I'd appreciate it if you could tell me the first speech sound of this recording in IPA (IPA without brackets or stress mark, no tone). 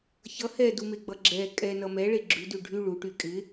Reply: ç